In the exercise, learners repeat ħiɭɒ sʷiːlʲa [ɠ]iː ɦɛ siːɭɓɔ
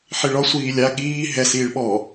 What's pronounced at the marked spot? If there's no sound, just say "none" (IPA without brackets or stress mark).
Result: ɠ